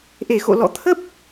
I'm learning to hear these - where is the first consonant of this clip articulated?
throat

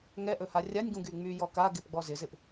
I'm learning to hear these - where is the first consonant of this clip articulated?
velum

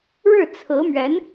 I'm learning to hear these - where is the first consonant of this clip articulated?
retroflex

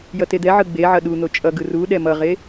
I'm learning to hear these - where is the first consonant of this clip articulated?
palate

